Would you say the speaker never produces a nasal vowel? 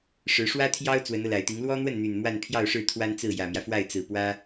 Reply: yes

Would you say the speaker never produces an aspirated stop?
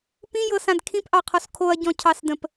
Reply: no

